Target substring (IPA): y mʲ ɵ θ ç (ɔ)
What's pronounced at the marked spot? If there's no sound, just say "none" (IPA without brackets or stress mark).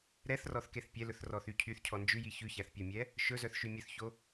o